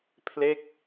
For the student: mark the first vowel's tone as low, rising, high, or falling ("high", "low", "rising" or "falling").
falling